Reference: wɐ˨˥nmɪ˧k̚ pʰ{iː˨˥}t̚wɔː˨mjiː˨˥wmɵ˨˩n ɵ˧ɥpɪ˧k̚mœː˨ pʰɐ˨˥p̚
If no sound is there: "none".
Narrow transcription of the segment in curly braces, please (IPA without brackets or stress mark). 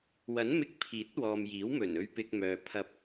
iː˨˥